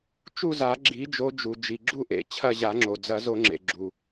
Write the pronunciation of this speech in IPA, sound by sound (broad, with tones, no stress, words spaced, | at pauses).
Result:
t͡ʃu˦˨za˨˩˦ ɡ͡ǁi˨˦d͡ʒo˨˦d͡ʒu˩ d͡ʒi˩ɡ͡ǁu˦˨ʔḛ˩ t͡ɕʰɐ˦˨ʑa˨˩˦ŋ͡ǁo˩ d͡zɐ˨˩˦zo˨˩˦ ŋ͡ǁḛ˩ɡ͡ǁu˩